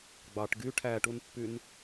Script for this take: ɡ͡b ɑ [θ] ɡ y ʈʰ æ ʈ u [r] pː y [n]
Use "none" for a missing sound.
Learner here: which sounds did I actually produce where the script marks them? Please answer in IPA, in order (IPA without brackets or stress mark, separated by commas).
ʈ, n, n